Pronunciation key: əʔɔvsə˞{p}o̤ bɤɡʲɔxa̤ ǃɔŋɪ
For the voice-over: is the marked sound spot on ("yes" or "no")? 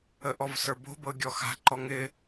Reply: no